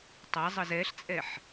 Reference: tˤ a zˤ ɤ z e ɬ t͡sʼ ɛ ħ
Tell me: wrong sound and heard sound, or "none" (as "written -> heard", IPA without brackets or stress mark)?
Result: e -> ɛ